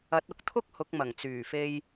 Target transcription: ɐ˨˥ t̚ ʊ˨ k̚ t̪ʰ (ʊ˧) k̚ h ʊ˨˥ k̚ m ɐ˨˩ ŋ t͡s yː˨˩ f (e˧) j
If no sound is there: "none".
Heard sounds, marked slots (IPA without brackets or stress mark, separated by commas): ʊ˥, e˧